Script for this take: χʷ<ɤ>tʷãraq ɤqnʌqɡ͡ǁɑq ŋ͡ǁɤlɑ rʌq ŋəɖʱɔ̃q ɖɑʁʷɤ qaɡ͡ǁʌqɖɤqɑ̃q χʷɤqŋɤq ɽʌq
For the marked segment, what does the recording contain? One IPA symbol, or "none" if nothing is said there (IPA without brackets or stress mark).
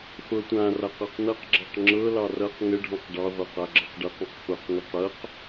ɤ